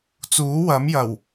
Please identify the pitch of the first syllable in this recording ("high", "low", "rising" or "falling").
rising